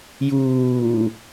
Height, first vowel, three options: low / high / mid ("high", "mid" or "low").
high